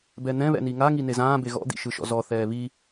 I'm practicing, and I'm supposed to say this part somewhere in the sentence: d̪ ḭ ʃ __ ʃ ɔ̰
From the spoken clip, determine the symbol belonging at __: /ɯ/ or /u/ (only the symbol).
ɯ